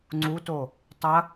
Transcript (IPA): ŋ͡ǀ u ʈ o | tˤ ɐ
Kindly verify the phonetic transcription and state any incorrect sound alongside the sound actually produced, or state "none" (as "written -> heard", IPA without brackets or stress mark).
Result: ʈ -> t